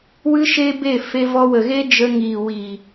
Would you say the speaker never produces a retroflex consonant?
yes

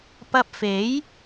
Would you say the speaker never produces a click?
yes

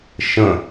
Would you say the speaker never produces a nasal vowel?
no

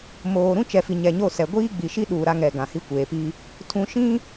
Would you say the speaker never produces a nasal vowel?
no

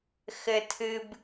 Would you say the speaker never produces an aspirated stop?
no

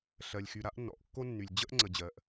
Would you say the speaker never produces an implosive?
yes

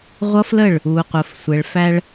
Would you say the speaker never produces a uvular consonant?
no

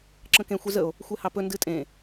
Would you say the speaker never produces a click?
no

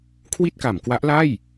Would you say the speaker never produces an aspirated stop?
no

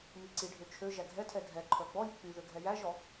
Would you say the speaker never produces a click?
no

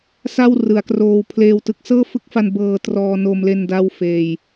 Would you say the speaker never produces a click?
yes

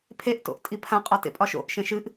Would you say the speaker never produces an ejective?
no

